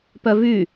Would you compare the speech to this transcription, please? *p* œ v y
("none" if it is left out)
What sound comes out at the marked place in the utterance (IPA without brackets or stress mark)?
p